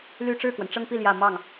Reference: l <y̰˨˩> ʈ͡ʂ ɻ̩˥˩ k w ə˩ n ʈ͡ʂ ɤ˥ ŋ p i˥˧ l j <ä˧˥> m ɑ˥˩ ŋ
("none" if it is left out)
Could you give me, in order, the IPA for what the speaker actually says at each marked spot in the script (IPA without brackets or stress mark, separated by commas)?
y˥˧, ä˥˧